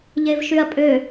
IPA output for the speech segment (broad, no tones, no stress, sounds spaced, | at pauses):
ʎ e v ʃ y ɐ̯ pʼ ø